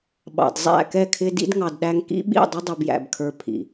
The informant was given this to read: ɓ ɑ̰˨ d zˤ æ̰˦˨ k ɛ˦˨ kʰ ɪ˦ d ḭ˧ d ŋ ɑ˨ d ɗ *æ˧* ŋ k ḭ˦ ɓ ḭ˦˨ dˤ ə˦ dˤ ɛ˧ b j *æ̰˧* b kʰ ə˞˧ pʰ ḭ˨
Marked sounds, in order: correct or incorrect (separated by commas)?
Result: correct, incorrect